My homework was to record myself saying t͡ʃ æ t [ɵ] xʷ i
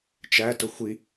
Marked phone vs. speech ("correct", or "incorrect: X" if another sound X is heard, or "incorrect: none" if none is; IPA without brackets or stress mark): incorrect: ʊ